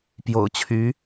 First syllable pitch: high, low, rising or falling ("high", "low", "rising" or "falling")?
low